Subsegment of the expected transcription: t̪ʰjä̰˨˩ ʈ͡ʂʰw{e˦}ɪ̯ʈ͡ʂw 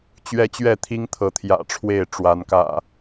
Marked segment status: incorrect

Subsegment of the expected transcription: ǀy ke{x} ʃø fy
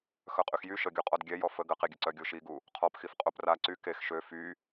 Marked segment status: correct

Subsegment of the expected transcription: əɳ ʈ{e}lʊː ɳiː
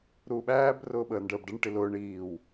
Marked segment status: incorrect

